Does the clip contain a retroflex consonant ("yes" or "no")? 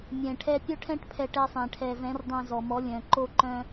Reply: yes